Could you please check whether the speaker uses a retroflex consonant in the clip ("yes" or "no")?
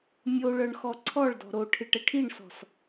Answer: yes